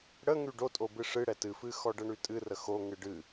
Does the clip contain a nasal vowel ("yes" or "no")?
no